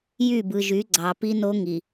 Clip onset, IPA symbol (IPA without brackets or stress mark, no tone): j